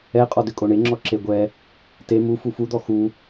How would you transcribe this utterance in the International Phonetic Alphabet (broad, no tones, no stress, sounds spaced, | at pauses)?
ɛ qʼ ɔ d ʏ kʼ o ɳ e ŋ͡ǁ ɔ ǁ e ɡʷ ɛ | t e m u f u f u d̪ ɔ x u